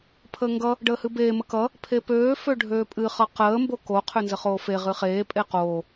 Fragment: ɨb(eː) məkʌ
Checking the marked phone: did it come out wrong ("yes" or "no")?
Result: no